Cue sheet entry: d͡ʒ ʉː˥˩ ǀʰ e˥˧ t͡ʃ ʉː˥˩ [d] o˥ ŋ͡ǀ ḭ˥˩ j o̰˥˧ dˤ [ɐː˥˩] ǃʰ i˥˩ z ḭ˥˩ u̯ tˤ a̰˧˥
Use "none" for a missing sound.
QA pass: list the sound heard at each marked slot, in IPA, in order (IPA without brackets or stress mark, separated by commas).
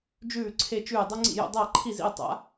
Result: dˤ, ɐː˥˩